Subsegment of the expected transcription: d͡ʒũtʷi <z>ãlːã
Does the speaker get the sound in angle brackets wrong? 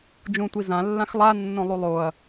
no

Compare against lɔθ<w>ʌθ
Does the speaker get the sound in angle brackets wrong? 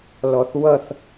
no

